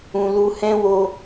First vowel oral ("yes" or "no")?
no